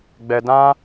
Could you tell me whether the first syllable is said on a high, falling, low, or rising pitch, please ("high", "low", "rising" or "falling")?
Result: high